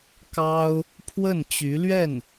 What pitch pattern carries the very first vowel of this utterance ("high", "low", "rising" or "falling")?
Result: high